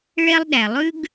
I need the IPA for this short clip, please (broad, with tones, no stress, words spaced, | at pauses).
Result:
ɭɛ˦lˠɗæ˨ lˠʉ˦ɡ